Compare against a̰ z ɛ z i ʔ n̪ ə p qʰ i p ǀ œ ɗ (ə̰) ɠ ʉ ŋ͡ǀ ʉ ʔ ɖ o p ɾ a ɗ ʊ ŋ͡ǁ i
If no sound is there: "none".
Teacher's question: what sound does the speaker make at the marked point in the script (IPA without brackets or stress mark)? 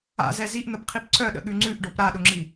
ə̰